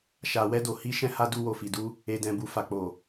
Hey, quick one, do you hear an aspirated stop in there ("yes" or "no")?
no